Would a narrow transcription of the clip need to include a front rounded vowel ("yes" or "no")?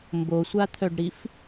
yes